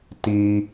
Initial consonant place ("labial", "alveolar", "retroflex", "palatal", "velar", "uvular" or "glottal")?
alveolar